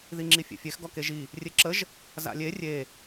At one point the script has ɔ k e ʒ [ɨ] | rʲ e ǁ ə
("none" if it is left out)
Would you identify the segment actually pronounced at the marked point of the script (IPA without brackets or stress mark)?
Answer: i